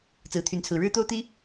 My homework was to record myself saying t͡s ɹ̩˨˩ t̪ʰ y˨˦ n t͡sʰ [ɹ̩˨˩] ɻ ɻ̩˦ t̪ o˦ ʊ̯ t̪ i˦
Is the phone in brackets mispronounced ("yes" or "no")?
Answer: no